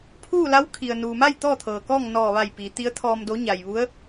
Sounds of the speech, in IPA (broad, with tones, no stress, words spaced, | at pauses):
pʰuː˥˨la˧˥wkʰi˩ə̯ nuː˩ma˥˨j t̪ɔː˥˨t̪ʰɤː˩kɔː˥˨ŋ nɔː˧˩ ʋa˧˩jpiː˩ t̪i˩˧ə̯t̪ʰɔː˩mdo˩˧ ɲa˩jʋu˧˥ə̯